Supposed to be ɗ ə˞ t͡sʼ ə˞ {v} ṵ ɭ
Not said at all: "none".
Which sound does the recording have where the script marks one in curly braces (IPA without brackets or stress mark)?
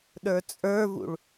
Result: v